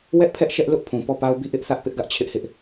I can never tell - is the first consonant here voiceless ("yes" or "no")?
no